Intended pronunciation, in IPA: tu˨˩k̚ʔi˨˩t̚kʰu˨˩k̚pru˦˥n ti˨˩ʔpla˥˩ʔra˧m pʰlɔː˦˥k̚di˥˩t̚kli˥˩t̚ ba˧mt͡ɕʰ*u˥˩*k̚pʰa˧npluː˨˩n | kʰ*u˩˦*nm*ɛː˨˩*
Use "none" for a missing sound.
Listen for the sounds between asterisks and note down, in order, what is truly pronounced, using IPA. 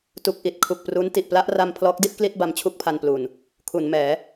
u˥˩, u˩˦, ɛː˩˦

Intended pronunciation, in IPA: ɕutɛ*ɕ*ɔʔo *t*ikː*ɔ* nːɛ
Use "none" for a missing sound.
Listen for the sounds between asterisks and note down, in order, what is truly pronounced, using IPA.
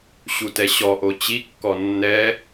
ɕ, t͡ɕ, ɔ

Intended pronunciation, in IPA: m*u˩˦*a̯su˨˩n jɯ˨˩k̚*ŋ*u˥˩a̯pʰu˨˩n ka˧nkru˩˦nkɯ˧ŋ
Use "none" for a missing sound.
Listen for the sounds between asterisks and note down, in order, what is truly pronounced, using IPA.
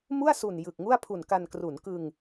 u˥˩, ŋ

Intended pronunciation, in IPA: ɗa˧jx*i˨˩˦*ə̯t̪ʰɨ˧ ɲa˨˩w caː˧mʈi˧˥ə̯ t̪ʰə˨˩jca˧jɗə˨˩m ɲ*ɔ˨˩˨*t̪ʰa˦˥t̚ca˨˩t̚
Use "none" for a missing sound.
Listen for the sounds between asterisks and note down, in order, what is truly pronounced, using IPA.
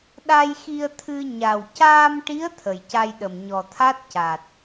i˧, ɔ˨˩

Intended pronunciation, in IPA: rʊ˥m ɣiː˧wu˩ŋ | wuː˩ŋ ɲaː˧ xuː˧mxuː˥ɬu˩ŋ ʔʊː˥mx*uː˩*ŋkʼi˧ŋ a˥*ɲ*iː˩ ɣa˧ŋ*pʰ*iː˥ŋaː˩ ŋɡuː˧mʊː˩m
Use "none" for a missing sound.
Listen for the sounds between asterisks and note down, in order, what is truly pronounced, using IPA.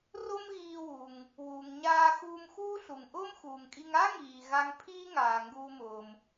uː˩, ŋ, pʰ

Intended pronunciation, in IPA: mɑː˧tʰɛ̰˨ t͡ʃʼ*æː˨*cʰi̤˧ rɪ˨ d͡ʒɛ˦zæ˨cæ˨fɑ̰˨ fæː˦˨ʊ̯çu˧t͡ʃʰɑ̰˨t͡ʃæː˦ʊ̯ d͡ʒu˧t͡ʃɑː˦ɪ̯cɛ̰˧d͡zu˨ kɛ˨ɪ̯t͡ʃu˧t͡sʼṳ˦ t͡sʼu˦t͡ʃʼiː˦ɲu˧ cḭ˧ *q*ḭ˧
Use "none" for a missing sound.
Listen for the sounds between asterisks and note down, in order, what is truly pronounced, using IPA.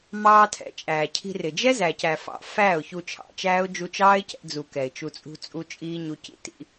æː˨, t

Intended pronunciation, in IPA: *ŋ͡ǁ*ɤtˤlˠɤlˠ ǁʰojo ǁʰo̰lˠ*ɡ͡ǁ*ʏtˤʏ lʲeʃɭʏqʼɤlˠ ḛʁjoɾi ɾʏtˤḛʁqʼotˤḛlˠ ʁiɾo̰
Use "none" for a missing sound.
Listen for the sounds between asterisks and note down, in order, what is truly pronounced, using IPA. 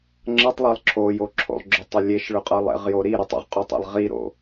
ŋ͡ǁ, ɡ͡ǁ

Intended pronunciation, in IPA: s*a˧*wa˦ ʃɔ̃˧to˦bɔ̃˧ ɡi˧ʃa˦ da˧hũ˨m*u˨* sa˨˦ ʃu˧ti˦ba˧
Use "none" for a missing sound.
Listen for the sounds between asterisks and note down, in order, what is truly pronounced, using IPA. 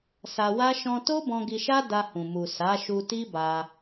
a˧, u˨

